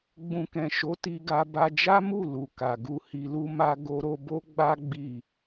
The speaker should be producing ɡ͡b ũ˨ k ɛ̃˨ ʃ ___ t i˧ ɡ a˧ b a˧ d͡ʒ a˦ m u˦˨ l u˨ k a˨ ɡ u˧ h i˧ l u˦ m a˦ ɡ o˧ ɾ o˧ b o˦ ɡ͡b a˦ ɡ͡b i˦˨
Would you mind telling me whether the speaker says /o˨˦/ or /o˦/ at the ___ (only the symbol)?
o˨˦